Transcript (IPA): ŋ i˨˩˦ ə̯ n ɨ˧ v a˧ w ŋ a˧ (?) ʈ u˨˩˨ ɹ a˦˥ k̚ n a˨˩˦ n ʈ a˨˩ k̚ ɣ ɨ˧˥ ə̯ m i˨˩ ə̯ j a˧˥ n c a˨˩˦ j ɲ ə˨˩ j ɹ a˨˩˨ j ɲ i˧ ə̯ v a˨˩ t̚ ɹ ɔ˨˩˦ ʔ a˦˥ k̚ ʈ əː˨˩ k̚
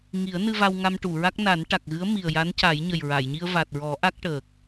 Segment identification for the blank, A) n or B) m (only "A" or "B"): B